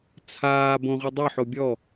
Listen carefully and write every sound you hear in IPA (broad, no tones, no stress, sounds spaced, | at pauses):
t͡sʰ aː b õ ʁʷ i dˤ ʏ ħ o bʲ ɔ